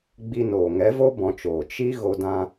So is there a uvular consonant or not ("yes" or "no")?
no